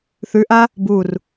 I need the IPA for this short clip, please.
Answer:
θʉʔa | bur

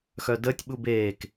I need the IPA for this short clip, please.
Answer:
xœdəːtʲ ɓubeːk

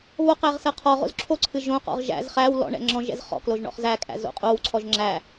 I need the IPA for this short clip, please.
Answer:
βoqæʁ sɜqʰɔʁo̰z ǁʰoǀʰɨ ʒõqɔ̰ʁ ʒæ̰z χæw lɔ̰ɳɛ̰ ŋ͡ǁɔ̃ʒɛ̰z χɔ̰kloʒ ɳɔ̰χzækʼæ̰ zo̰qʼowǀʰɔʒ ŋ͡ǁæ

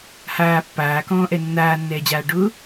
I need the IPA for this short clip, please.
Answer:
haː pːaːkɔ̃ːʔɛ nːaːnːɛːd͡ʑaː ɖʊ

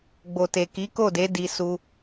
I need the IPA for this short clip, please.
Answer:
ɡ͡bo˨te˨ki˨˦ ko˦˨de˨˦ di˧ su˧

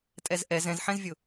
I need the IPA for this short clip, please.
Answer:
tʼɛzʔɛ zɛ̃zħɛ̃zvʲʊ

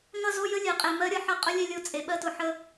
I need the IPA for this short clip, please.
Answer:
ŋʌ˦˨zo˦ jə˦lʲɛ˨qʼe˨ mɜ˦ɾʲʌ˨ħʌ˦˨ qʼʊ˦lʲɛ˦lʲo˦ t͡sʼe˨ɓɜ˦tʊ˨ ħə˦

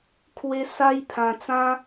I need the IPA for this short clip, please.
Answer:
kʰwe˧ sa˦j pʰã˧t͡sã˦

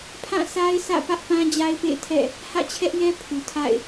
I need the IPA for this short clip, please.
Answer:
pʰã˦˨sʰa˦ɪ̯sʰä̰˦˨ pä˦ʔpã˦ d͡ʑa˦ɪ̯pḛ˦˨ɪ̯tʰɛ̰˦˨ | hä̰˦˨t͡ɕʰɛ˦ʔjɛ˦ pʰu˨tʰa̰˦˨ɪ̯

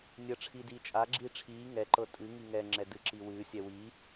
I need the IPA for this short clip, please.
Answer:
nʲə ʈ͡ʂʰidiːt͡ʃʼa ɡ͡ǁiːʈ͡ʂʰiː ŋɛ ǃɤtʼɨ ŋiŋɛ ŋ͡ǁɛdɨǁiwɨː sʲɛwi

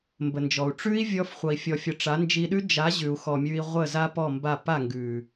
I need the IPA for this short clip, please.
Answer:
mbə˨nd͡ʒɔ˨u̯ ʈ͡ʂʉ˦i̯vʲɔ˧f χʷʌ˨i̯fʲɔ˨fʲʌ˨ ʈ͡ʂa˨˦nd͡ʒi˧ɗʉ˦ d͡ʒa˨˦ʑʉ˨u̯ xɔ˨ mʲʉ˧i̯ʁʷə˦˨ za˦pɔ˦˨mba˦˨ pa˦˨ŋɡʉ˨

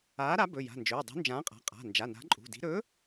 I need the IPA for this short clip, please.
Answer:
aː˨˥ɾa˨˥ bɵ˩˧˩ja̤˩˧˩nd͡ʒɵː˩˧˩ dˤṳ˨˥nd͡ʒãː˨˥qʼa̤˩˧˩ qʼa̤˩˧˩ nd͡ʒa˩˧˩na̤˨˥ǃʼṳ˩˧˩di̤˨˥ ɾɵ˨˥

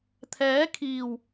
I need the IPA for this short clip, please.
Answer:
t̪ʰɛː˨˥kʰiː˨˩w

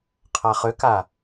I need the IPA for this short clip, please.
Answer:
qʰaχʏka

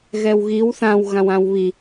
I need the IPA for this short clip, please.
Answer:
ɣɛwɣiw θãwɣãw ãwβi

